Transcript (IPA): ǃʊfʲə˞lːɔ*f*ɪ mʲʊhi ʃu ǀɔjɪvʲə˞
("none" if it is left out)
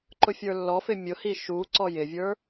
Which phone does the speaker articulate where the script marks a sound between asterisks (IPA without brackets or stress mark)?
f